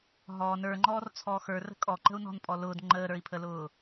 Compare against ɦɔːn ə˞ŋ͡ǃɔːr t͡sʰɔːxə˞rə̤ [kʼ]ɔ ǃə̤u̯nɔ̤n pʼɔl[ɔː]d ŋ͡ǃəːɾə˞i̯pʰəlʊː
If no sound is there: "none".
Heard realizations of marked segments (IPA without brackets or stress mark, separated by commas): kʼ, ʊː